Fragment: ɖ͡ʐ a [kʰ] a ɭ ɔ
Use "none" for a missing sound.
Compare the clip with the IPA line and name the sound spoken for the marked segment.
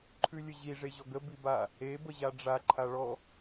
ǃʰ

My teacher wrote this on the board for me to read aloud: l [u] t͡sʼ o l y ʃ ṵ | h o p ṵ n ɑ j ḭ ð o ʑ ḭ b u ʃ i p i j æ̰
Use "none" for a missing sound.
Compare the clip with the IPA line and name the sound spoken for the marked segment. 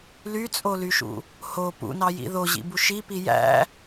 y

